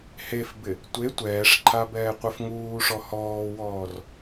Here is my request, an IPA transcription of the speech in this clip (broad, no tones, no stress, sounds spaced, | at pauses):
h e f b ɪ | tʷ e tʷ ɛː ʂ ǃʰ a b ɛː qʷ ɛ f ŋ uː ʂ ɔ h ɔː w ɔː r